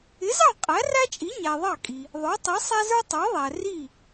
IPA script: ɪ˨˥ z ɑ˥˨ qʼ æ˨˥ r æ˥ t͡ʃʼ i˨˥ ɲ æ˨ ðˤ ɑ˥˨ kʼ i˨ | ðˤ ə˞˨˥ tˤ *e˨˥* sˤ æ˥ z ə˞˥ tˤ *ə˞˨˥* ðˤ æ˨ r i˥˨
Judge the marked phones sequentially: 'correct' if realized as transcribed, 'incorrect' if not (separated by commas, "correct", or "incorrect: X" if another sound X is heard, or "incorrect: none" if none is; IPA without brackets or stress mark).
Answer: incorrect: i˨˥, correct